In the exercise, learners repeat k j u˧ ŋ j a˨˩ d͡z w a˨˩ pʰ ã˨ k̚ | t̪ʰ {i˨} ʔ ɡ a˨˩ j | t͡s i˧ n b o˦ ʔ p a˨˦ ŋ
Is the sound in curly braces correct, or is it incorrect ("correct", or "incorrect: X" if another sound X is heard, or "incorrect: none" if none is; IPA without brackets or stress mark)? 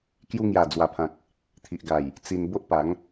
correct